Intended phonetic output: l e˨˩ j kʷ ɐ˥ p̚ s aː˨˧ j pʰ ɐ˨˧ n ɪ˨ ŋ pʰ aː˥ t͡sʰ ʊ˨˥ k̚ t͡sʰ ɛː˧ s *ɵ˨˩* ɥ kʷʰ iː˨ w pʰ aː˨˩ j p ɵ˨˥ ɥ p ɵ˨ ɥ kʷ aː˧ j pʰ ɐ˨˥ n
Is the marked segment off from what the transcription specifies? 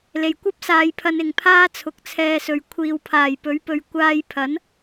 yes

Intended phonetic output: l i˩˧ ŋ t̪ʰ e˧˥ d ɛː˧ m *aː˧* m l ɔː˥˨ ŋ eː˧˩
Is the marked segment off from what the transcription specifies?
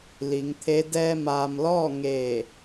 no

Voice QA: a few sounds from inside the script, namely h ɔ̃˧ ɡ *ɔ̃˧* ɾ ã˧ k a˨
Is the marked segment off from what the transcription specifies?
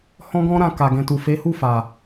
no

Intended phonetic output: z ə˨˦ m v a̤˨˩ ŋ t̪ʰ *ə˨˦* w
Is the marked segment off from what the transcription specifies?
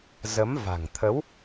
no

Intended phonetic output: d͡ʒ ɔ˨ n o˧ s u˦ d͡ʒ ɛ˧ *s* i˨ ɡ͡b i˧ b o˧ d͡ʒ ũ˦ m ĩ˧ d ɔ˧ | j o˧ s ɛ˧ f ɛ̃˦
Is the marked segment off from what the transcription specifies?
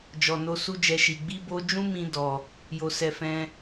yes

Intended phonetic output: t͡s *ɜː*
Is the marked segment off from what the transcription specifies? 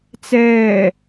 yes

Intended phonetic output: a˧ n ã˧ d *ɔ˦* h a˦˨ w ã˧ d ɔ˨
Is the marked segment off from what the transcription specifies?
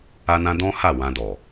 yes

